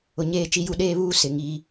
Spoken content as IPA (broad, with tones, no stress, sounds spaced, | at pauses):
ʊ˨ ɲ eː˦˨ t͡ʃ i˦ j u˦ ɗ eː˦ β uː˦ s ɪ˨ ŋ iː˦